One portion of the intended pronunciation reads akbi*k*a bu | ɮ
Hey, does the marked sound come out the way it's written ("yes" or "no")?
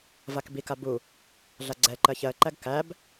yes